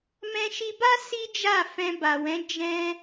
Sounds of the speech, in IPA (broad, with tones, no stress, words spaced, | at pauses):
mɛ̃˧ʃi˧ba˦ si˦ d͡ʒa˦˨ fɛ̃˧ba˨wɛ̃˨˦ d͡ʒɛ̃˧